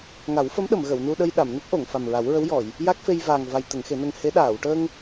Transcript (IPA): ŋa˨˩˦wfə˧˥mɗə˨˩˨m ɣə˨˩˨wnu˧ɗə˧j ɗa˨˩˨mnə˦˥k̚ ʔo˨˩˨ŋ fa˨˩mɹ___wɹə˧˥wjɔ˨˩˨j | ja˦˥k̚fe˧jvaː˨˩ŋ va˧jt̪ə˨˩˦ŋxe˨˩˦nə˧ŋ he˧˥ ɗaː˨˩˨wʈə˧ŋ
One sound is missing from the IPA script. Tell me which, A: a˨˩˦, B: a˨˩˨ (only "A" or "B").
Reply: A